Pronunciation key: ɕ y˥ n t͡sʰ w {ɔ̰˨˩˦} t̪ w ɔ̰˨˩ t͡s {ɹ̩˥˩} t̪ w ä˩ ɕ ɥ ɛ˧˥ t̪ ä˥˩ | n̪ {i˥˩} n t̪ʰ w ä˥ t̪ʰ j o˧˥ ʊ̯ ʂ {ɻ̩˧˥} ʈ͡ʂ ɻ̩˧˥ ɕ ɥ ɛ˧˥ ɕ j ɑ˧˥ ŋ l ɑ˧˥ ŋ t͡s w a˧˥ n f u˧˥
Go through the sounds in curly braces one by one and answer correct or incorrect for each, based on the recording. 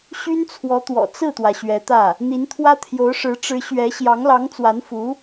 incorrect, correct, incorrect, correct

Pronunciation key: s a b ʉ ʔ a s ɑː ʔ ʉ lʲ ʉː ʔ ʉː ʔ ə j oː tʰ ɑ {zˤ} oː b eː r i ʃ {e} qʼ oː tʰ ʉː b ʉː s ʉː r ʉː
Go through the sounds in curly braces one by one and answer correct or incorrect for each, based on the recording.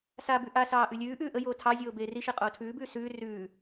incorrect, correct

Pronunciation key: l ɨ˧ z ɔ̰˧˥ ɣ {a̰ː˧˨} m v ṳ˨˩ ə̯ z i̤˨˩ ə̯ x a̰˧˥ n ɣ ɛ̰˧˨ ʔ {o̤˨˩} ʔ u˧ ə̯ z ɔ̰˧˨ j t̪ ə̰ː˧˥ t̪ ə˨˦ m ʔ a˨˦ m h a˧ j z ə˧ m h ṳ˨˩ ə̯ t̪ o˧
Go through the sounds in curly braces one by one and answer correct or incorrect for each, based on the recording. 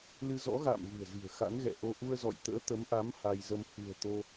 correct, incorrect

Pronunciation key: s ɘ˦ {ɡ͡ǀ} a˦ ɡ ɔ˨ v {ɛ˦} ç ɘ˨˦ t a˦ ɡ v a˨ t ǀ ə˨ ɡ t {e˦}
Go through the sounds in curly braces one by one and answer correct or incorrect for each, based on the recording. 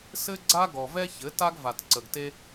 correct, correct, correct

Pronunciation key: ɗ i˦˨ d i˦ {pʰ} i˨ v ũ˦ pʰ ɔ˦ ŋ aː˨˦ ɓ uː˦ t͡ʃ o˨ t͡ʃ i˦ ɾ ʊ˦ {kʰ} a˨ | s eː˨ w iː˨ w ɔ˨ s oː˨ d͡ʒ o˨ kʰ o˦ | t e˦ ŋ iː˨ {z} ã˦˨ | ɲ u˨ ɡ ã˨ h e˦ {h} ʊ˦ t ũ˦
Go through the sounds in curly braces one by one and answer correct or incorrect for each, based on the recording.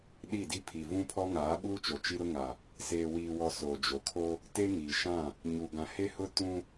correct, incorrect, incorrect, correct

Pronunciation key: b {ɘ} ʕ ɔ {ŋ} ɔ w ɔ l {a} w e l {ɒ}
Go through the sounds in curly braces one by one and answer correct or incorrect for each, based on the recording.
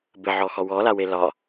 correct, incorrect, correct, correct

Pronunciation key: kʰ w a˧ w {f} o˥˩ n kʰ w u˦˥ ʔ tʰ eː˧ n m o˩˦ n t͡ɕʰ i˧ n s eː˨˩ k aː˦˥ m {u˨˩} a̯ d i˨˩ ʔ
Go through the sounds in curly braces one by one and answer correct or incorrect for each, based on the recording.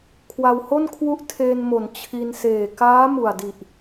incorrect, correct

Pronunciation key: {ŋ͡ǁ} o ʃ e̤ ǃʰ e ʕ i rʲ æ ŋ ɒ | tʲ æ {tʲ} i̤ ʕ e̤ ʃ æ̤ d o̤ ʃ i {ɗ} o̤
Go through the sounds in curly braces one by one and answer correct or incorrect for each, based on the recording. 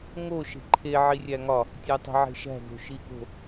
incorrect, incorrect, incorrect

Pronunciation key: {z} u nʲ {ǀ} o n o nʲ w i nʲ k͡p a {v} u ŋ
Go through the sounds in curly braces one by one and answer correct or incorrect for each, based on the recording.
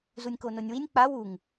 correct, incorrect, incorrect

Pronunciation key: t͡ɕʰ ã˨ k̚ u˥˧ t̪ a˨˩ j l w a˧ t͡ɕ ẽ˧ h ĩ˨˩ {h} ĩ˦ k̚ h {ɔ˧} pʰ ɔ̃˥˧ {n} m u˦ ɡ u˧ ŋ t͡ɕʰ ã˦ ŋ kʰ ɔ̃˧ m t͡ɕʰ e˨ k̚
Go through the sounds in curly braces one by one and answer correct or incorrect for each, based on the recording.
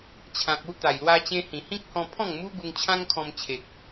correct, incorrect, incorrect

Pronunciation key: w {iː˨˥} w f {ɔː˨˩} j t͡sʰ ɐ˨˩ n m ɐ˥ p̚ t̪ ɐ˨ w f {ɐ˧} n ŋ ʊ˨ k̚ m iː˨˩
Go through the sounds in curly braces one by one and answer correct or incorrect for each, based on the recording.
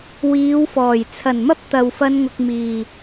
incorrect, correct, correct

